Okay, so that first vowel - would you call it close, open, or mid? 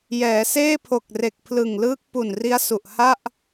mid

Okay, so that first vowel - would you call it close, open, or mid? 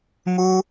close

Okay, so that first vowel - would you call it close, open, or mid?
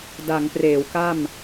open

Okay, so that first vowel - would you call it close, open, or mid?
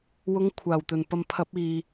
close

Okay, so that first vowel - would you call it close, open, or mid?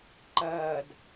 open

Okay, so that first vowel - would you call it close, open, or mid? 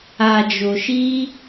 open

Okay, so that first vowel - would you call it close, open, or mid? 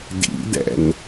close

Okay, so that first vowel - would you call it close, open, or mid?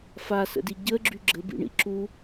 open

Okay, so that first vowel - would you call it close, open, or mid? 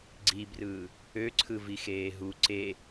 close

